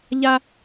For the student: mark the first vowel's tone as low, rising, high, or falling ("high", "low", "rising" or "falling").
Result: high